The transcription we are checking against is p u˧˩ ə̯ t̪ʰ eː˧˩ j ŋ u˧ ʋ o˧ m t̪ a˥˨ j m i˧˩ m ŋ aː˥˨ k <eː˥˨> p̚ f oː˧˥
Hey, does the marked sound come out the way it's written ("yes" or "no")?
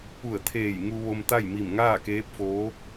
no